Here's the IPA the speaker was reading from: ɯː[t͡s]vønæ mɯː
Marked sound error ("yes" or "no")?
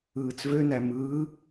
no